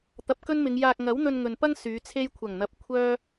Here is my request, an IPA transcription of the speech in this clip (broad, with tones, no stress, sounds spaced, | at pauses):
t̪ ɐ˨ p̚ k ɵ˥ n m ɪ˨˧ ŋ j aː˧ k̚ ŋ ɐ˨˥ w n̪ ɵ˧ n ŋ ɵ˨ n p ɐ˥ ŋ s yː˨˧ t͡sʰ e˥ j kʷʰ ɐ˨˩ ŋ n̪ ɐ˨ p̚ kʷʰ œː˥